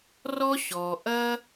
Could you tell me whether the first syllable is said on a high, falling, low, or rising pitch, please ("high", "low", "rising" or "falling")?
high